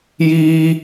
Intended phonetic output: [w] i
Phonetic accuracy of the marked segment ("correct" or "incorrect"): incorrect